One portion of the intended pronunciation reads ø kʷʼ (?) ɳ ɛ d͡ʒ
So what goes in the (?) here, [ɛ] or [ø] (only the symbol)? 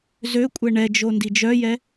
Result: ɛ